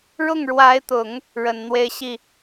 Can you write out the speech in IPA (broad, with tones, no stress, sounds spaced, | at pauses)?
ɻ ʊ˥˩ ŋ ɻ w a˧˥ ɪ̯ t̪ ʊ˨˩˦ ŋ | ɻ ə˨˩ n n̪ w e˥˧ ɪ̯ ɕ i˥˩